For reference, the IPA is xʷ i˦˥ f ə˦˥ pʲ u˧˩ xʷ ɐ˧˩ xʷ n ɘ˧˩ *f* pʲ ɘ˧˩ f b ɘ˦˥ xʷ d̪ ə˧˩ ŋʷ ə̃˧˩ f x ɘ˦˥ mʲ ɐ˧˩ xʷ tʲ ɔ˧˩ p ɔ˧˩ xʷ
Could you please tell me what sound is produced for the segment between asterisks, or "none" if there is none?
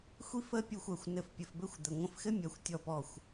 f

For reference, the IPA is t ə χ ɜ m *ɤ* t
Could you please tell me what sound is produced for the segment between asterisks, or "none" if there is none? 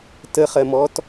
ɔ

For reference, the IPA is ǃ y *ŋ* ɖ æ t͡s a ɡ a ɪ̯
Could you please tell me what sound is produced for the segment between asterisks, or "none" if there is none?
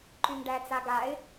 ŋ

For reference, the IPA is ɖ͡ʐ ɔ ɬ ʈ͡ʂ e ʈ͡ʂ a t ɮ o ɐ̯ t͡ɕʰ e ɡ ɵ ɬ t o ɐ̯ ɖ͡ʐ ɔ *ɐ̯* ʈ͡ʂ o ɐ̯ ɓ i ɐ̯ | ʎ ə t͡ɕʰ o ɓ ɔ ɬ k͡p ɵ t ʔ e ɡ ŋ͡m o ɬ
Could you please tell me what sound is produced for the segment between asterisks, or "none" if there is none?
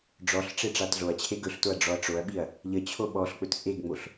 ɐ̯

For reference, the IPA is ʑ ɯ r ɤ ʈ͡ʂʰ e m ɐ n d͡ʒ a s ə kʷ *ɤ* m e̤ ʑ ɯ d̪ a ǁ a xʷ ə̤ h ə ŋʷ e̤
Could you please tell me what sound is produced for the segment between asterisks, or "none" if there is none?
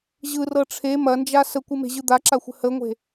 ɯ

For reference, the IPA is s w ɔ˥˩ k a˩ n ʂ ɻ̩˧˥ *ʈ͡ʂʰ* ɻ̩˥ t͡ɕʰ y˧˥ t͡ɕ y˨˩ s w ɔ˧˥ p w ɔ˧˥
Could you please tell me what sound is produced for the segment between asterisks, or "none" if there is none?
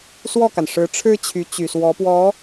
ʈ͡ʂʰ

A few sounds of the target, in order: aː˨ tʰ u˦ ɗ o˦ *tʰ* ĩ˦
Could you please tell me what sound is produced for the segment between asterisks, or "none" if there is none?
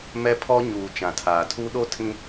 tʰ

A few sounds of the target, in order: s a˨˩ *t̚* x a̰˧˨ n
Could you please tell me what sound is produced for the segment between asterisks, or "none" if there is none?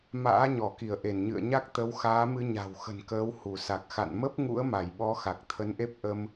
k̚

